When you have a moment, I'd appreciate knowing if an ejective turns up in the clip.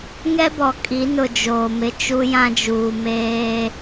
yes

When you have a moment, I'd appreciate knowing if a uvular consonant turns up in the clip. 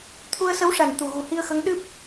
no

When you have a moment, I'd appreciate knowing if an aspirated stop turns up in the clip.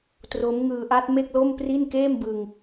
no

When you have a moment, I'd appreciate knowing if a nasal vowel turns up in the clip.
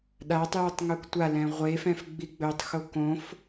yes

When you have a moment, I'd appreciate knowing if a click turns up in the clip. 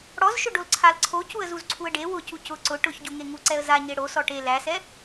yes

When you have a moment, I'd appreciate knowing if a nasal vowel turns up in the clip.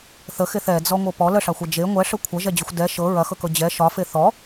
no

